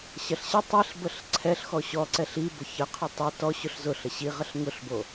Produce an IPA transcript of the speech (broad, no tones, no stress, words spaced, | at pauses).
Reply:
ɕɐɬɕə tˤiɬbəɬ ǀʰɛɬ xɔɕɔǀɛɬ ibʊ çəqʰʊ tˤi tɔɕʊɬ zʊɬə ɕiʁəɬ ŋʊɬbo